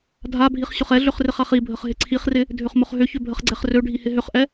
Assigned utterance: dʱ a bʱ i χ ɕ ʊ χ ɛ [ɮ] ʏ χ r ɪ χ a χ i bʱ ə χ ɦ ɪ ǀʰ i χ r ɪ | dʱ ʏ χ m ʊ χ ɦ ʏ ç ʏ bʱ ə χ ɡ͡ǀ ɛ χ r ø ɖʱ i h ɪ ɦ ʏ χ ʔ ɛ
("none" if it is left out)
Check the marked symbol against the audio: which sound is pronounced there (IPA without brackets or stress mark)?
ɮ